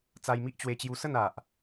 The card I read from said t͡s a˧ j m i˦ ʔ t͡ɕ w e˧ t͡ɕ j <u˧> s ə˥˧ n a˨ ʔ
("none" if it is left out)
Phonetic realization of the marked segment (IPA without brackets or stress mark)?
u˧